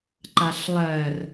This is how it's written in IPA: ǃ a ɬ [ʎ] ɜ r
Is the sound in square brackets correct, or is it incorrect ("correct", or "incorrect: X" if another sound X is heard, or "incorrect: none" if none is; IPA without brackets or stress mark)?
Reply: incorrect: lˠ